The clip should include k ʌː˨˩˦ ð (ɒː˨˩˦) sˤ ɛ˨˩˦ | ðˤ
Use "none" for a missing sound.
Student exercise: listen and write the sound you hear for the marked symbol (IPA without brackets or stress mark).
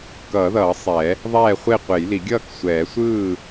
ʌː˨˩˦